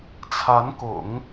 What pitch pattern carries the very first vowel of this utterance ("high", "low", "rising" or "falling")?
rising